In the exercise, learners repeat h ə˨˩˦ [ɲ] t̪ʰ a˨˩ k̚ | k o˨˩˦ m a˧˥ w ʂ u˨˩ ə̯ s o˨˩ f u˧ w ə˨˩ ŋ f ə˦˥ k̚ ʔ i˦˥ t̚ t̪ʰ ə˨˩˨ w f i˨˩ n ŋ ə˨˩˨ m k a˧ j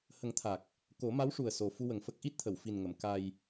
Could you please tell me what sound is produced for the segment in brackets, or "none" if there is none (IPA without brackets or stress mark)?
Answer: ŋ